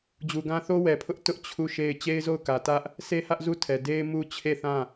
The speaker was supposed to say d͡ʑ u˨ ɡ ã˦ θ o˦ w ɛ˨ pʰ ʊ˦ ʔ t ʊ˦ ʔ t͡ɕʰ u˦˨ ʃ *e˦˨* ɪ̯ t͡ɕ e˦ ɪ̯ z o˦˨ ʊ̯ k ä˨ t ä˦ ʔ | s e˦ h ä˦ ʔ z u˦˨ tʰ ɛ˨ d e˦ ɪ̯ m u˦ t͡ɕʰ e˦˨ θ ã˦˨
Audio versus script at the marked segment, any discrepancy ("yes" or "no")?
no